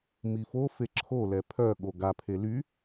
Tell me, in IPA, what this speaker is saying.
m i f o f e ǁʰ o l ɛ pʰ œ ɠ o ɡ a pʰ e l y

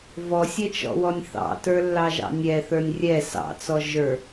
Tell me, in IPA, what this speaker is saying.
v ɔ sʲ ɛ t͡ʃ ɔ̰ w ɔ nʲ θ ɑ̰ t ə˞ lː ɑ ʒ ɑ̰ nʲ ɛ θ ə˞ nʲ rʲ ɛ s ɑ̰ t͡s ɔ ʒ ə˞

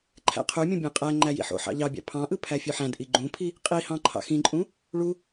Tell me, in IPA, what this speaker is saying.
ǃʰ æ̰ qʰ y mʲ õ bʲ æ̃ qʼ æ ŋ͡ǃ æ j ḭ ħ o̰ ħ ɑ̰ ʎ ɑ bʲ ɑ̰ pʰ ɑ̃ ʔ ɯ pʰ æ fʲ ø ħ æ̃ d ʔ i ɡ͡ǃ ũ pʰ i | qʼ i h ɑ̃ ǃʰ ɑ̰ x ĩ ǃʼ ũ | ɭ u

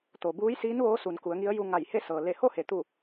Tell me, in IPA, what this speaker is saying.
t̪ o˩ b uː˧˥ j s iː˧˥ n ʋ oː˧˥ s u˩ n k u˩˧ ə̯ ŋ i˧˥ ə̯ j u˧ ŋ a˧˩ j h e˥˨ s ɤː˩ l e˧˩ h o˥˨ h e˩ t̪ u˧˩

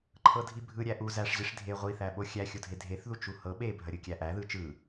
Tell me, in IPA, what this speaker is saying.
ǃʰ ɤ dʱ i bʱ ɯ ɾʲ æ ʔ u z æ ʂ ʑ i ʂ dʱ e ʁʷ i θ æ ɓ o xʲ æ xʲ o dʱ e dʱ e θ ð u t͡ʃ u h ɤ ɓ e bʱ ɐ ɾʲ ɯ kʲ æ ʔ æ ð ɯ t͡ʃ ɯ

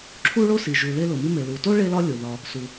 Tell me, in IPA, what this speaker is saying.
ǁʰ u˥ ɭ o˥ s i˩ ʒ u˩ l e˥ l ʊ˩ m i˥ m e˩ l u˩ t o˥ ɭ e˥ l ɒ˥ lʲ o˩ ð ɒ˩ | s u˩

